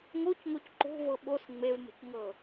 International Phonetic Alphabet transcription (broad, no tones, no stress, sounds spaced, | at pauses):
ŋ o c ŋ o c ǃ o̤ v ɤ ɓ o s ŋ͡m e v m ə̤ c ŋ ɤ